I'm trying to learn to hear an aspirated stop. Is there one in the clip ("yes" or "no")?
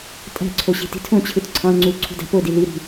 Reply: yes